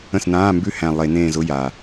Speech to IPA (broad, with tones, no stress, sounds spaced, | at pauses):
ə̃˦˨ s n ãː˧˥˧ m b ʉ˦˨ h æ̃˨˩ lˠ e˧˩˧ n ẽː˦˨ z ʊ˧˥˧ j a˨˩